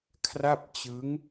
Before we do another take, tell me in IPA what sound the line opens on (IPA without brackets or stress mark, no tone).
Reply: kʰ